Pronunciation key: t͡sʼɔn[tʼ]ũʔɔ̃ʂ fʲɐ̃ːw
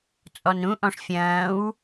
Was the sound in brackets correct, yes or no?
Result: no